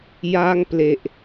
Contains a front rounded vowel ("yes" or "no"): no